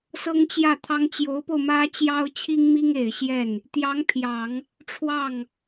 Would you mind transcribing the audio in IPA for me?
s ɤ˥ ŋ t͡ɕ j ä˥˩ t̪ʰ ɑ˥ ŋ t͡ɕ j o˧˥ ʊ̯ p o˧ ʊ̯ m ä˥ t͡ɕ j ɑ˥ ʊ̯ t͡ɕʰ i˥ ŋ m i˥ ŋ e˨˩ ɪ̯ ɕ j ɛ˥˩ n | t̪ j ɑ˧˥ ŋ pʰ j ɑ˨˩˦ ŋ | ʈ͡ʂʰ w ɑ˥˩ ŋ

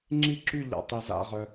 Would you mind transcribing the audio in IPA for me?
ŋ͡ǁ i˥˧ ǁ y˥˧ ʎ a̰˧ tˤ e˧ z a̰˥˧ ʁ œ˧

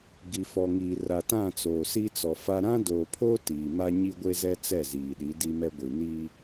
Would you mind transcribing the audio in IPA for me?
ɡ i˨ f ɔ˨ ŋ iː˨ r a˨ t ã˦˨ t͡s oː˨ s i˦ t͡s ɔ˨ f a˦ ɾ ã˦ d oː˨ pʰ oː˦ t iː˨ m a˦ ɲ i˦ ɡʷ e˦ z ɛ˦ t͡s ɛ˦˨ z iː˨ ɗ i˨˦ d i˦ m ɛ˦ ɡʷ i˨ n i˦

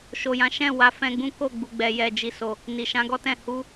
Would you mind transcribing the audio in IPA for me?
ʃ o˨ j ã˨˦ ʃ ɛ̃˦˨ w a˨˦ f ɛ̃˧ ɡ͡b ũ˦ k o˦˨ ɡ͡b u˨ ɡ͡b ɛ˨ j ɛ˨ d͡ʒ i˨ s o˨ | n i˨ ʃ ã˨˦ ɡ ɔ˦ t ɛ̃˦˨ h u˧

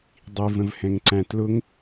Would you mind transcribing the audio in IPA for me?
dˤ i v ə̃ v h ɛ̃ ŋ ǀ æ̃ t l ʊ ŋ

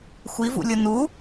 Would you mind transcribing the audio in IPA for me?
xʷ i v ṵ lʲ o n u

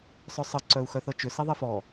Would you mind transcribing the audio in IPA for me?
sˤ œ sˤ ə ǀ œ u̯ x œ θ ɤ t͡ʃ ʏ s e ðˤ e f ɔ

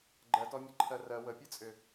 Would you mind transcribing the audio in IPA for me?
ɡ͡ǃ ɜ t ɔ mʲ ɯ ǃʰ ɜ r ɜ w ə pʲ ɯ t͡sʼ ʏ

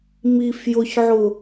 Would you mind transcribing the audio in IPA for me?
m i f j ʊ ç ʕ ʊ

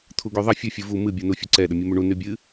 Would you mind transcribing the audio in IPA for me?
t̪ʰ u ɡ y ðˤ ə fʲ ɨ fʲ ɨ v u m ɨ bʲ u n u fʲ u ǀ ɛ ɗ ə mʲ u m y ɳ u n y bʲ ɨ

